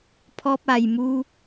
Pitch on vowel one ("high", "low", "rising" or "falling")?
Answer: high